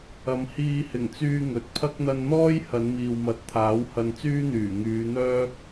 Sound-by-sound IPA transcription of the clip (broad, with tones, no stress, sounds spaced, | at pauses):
ɐ˨˧ m h iː˧ h ɪ˨˩ ŋ t͡s yː˧ ŋ ɵ˨ t̚ pʰ ɐ˥ k̚ n̪ ɐ˧ n n̪ ɔː˥ j h ɐ˨˧ n m iː˨ w m ɐ˨˥ t̚ t̪ʰ aː˨˥ w h ɐ˧ n t͡s yː˥ n̪ yː˨˩ ŋ yː˨˧ n̪ œː˥ k̚